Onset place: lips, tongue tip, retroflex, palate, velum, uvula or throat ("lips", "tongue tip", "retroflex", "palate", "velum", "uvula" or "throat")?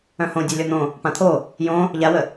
throat